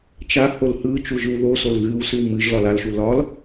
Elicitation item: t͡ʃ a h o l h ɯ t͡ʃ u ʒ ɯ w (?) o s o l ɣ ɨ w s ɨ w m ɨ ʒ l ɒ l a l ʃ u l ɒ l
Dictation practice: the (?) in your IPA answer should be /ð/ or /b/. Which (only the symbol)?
ð